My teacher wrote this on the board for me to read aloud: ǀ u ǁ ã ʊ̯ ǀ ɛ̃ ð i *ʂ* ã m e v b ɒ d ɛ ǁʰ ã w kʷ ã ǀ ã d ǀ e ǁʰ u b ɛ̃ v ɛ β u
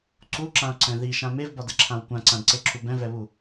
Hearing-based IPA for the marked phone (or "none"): ʃ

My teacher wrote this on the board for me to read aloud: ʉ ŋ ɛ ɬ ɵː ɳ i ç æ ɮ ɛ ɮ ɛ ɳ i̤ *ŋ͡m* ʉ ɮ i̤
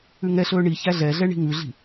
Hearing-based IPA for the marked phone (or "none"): ŋ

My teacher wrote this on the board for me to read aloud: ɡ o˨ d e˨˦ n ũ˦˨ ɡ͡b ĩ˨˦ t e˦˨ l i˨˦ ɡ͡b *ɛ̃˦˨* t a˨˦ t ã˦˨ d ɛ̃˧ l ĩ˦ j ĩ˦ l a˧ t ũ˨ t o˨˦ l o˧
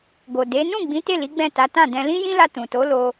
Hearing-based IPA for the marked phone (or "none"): ɛ̃˦˨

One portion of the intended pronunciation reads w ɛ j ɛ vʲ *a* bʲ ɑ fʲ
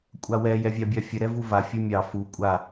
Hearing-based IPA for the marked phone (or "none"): ɑ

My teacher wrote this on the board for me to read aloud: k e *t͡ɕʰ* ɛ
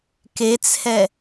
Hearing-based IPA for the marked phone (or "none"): t͡sʰ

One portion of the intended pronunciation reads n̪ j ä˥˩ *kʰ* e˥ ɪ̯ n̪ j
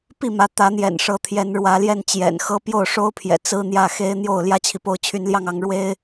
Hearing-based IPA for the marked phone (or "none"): x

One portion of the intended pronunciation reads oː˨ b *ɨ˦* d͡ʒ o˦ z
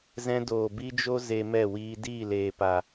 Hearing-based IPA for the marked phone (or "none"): i˦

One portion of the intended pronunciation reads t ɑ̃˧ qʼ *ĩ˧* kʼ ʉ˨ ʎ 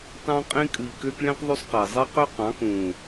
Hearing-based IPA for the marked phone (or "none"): ĩ˧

